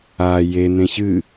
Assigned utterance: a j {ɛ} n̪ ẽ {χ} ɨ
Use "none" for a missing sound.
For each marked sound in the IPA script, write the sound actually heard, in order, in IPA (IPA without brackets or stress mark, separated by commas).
e, ç